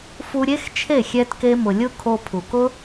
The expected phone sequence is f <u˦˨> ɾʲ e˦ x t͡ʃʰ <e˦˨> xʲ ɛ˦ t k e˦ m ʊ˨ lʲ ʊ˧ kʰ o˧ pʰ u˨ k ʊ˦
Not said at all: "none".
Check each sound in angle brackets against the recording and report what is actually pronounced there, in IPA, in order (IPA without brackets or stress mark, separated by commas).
u˧, e˦˨